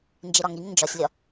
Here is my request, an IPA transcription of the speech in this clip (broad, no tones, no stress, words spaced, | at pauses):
nd͡ʒeɾɒŋɾiŋ nd͡ʒɒsʲlʲɒ